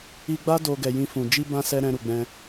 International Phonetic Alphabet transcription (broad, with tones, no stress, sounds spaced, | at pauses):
i˧ ɡ͡b a˦ d o˧ ɡ ɛ˨ j ĩ˧ f ũ˨ d͡ʒ i˧ b ã˧ s ɛ˧ ɾ ɛ̃˧ ɾ u˨ ɡ͡b ɛ̃˧